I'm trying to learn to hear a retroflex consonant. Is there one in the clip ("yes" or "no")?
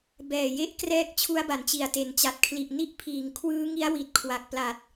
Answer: no